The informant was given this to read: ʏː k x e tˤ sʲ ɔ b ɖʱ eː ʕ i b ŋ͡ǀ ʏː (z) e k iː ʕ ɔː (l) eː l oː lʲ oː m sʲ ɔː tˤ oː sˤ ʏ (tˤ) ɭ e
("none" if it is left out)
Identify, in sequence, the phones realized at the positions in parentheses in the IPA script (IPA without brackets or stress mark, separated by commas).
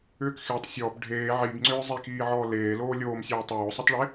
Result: zˤ, l, tˤ